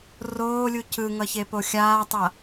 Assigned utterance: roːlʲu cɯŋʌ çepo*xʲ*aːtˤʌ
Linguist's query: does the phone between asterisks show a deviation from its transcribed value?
no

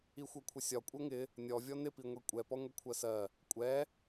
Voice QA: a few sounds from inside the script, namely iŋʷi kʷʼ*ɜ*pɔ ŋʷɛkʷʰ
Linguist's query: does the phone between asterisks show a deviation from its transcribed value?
yes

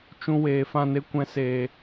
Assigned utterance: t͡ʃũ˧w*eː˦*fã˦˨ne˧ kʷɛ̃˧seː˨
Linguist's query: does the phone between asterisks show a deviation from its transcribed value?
yes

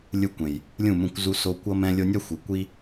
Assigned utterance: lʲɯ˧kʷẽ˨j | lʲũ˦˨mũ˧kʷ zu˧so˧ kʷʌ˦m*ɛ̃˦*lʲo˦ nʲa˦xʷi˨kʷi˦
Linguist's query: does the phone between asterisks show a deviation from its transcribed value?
no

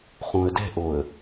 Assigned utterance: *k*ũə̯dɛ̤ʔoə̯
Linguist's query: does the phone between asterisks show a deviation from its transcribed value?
yes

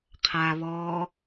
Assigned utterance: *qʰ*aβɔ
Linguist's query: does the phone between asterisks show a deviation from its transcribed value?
no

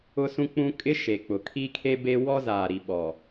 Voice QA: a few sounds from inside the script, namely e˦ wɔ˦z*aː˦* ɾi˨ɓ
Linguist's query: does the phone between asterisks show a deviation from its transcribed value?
yes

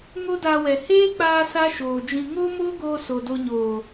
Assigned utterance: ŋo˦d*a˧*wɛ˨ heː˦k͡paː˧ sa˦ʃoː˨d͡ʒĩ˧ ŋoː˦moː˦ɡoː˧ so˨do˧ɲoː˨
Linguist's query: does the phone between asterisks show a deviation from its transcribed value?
no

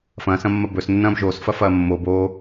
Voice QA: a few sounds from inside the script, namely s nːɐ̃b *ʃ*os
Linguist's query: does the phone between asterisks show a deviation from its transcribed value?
yes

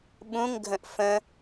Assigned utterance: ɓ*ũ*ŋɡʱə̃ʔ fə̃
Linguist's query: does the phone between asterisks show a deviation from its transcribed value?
no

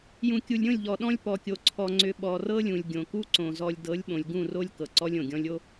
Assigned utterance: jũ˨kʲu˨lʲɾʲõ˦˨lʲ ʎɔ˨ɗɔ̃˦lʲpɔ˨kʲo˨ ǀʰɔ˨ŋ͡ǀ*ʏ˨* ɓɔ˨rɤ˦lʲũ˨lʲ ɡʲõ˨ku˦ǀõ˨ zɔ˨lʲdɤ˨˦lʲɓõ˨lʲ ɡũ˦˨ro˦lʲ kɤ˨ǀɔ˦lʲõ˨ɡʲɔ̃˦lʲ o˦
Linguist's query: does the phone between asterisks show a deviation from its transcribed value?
no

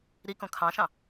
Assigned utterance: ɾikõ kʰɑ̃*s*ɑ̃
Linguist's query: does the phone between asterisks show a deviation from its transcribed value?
yes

